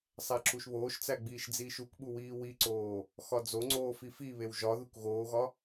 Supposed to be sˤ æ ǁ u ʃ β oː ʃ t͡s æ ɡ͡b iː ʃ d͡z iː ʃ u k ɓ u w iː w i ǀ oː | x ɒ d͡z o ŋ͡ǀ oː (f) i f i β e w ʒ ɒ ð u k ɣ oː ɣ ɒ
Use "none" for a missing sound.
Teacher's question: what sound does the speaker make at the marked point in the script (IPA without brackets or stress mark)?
f